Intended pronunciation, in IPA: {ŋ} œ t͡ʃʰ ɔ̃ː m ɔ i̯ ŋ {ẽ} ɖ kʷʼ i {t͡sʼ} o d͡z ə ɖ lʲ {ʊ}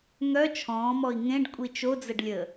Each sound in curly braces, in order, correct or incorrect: correct, correct, incorrect: t͡ʃ, incorrect: ə

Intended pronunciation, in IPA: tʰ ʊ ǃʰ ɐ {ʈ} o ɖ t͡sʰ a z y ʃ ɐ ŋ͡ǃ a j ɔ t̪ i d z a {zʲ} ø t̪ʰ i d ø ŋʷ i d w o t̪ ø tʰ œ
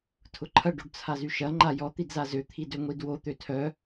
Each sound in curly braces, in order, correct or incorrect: incorrect: ɖ, incorrect: z

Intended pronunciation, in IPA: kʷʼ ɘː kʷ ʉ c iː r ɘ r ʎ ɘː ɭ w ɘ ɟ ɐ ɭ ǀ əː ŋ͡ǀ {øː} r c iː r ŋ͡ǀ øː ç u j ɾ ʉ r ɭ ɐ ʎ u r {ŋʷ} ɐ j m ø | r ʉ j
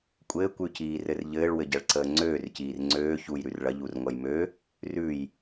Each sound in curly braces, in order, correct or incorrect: correct, correct

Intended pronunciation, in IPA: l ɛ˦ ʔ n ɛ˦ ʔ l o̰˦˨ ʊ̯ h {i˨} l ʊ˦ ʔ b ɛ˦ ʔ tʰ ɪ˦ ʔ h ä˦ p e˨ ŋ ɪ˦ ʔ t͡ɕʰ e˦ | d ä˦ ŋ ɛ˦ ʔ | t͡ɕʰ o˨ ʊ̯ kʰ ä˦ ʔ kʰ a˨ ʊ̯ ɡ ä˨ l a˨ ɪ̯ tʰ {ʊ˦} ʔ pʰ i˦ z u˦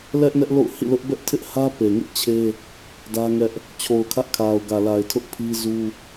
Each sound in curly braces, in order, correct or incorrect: incorrect: ḭ˦˨, correct

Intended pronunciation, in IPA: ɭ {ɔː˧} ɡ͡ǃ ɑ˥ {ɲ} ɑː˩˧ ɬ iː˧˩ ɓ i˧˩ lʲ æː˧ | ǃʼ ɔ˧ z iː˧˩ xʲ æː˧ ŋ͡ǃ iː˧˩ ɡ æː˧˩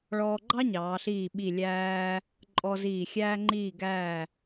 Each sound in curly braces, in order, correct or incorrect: correct, correct

